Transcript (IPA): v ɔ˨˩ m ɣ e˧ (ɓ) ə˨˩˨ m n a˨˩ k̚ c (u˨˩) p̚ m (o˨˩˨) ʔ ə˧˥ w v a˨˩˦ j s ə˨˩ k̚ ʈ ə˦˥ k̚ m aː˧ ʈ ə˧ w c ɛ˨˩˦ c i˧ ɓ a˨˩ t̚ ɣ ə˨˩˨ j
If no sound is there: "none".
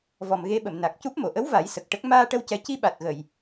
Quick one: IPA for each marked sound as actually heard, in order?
ɓ, u˦˥, o˨˩˨

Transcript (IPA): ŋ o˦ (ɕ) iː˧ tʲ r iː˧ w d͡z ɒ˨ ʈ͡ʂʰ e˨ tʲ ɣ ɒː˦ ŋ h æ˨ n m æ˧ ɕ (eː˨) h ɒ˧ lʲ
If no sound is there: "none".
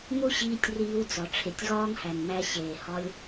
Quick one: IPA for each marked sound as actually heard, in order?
ɕ, eː˨

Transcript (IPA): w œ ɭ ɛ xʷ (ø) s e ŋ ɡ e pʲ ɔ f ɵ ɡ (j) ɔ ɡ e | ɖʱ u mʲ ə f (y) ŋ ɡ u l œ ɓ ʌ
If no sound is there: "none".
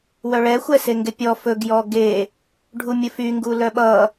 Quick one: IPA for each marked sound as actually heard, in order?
ɛ, j, y

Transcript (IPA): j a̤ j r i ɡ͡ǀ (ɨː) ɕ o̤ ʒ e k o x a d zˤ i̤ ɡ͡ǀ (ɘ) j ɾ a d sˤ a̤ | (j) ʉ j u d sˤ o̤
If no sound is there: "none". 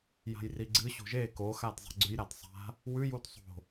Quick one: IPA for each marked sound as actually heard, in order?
ɨ, ʉ, w

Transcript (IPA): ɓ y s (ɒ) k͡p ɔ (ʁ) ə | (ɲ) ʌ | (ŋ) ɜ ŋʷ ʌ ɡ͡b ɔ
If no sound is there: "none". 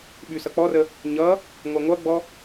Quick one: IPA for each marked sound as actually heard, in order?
ʌ, r, ɲ, ŋʷ

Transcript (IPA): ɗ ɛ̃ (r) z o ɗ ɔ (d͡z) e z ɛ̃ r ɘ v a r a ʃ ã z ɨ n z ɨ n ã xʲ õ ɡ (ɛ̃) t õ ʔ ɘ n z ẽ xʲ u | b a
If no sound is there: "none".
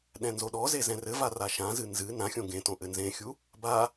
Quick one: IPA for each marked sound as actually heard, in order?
n, z, ẽ

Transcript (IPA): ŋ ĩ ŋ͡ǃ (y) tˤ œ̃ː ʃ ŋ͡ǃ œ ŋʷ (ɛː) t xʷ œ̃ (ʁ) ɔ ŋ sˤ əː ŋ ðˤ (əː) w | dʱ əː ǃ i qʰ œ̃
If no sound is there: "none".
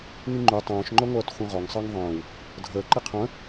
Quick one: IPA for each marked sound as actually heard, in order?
y, œː, ʁ, ə̃ː

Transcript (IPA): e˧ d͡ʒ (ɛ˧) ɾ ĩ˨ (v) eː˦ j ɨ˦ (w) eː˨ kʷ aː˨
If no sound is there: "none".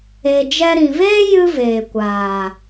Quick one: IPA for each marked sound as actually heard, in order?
ɛ˧, v, v

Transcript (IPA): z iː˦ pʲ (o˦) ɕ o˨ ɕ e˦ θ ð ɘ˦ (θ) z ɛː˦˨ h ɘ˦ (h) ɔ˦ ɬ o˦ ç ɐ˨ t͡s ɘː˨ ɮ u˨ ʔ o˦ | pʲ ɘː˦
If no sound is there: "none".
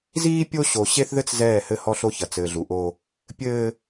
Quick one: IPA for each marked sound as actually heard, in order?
o˦, t͡s, h

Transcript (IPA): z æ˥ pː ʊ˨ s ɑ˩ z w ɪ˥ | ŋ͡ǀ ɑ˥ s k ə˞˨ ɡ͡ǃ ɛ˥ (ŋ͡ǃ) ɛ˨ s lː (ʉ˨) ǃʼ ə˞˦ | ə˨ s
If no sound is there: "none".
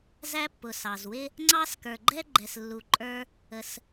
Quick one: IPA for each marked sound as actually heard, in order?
ɡ͡ǃ, u˨

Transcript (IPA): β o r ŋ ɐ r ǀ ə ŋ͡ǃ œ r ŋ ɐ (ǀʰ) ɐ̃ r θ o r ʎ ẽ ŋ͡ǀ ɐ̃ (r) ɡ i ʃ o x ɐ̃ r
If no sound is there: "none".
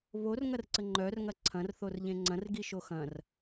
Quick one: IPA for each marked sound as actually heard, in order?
ǀʰ, r

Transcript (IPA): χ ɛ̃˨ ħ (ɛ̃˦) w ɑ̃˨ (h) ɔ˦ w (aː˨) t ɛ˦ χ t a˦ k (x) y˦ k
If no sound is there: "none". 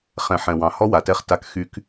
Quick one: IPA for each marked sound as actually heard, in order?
ɛ̃˨, h, a˨, x

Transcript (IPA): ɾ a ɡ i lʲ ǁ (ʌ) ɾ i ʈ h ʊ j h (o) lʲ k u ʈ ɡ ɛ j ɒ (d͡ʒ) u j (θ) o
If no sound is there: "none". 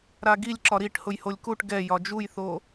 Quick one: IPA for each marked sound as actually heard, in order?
ɒ, o, d͡ʒ, θ

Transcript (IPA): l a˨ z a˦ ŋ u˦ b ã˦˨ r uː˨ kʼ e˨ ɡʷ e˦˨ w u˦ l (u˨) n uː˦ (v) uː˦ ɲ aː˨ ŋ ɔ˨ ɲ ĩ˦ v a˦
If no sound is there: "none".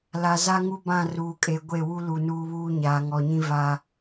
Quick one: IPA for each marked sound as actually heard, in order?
u˨, β

